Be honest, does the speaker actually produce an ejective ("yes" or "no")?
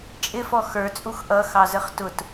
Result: yes